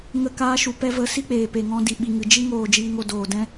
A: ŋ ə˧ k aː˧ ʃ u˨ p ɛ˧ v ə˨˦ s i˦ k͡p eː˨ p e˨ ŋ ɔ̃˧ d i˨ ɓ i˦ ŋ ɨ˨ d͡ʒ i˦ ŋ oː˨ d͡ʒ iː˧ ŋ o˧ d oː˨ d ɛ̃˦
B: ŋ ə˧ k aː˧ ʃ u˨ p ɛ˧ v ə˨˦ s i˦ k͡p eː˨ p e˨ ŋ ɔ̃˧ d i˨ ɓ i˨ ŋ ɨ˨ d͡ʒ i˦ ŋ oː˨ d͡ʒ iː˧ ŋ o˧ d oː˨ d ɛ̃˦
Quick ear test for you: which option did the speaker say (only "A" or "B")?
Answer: B